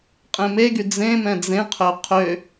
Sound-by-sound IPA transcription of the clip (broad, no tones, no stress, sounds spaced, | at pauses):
qʼ ẽ m e ɡ y d͡z ẽ m ɛ̃ d͡z ẽ qʰ ø qʰ ø